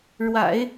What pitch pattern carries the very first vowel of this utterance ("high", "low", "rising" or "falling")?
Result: low